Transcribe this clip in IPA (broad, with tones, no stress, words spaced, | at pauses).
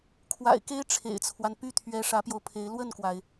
kʰwa̰˨˩ɪ̯ke˥ɪ̯ ʈ͡ʂʰḛ˨˩ɪ̯t͡sʰwa˦n py˥˩t̪ʰɥɛ˧˥ ʂä˧˥pjo˧ʊ̯pʰe˧˥ɪ̯ lwə˥˩nkwa˩ɪ̯